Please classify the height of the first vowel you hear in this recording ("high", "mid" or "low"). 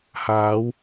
low